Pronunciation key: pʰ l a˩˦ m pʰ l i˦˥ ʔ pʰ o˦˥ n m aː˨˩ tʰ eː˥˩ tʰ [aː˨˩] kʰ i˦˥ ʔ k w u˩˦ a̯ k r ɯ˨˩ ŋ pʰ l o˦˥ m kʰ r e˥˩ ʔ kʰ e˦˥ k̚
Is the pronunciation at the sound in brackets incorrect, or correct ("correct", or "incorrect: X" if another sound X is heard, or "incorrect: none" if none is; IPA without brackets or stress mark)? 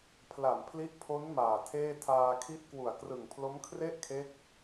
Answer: incorrect: aː˧